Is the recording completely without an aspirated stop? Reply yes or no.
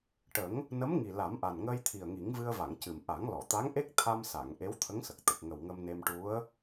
no